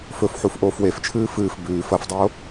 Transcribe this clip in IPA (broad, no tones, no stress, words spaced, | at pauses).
fɵfħuf ʔoːfweft͡ʃʰɨː fɨːf bʉːf ɐfdˤoː